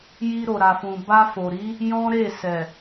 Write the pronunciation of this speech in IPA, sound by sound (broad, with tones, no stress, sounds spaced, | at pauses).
j i˧ ɾ o˨ ɾ a˨ f ũ˨ b a˧ f o˨ ɾ i˨˦ | j ɔ̃˦ ɾ e˦˨ s ɛ˨